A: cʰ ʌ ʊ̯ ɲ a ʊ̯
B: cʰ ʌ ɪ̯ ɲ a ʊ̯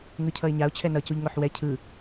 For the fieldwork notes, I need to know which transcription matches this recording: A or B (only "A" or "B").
B